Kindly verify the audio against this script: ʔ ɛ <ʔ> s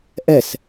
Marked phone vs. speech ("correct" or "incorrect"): incorrect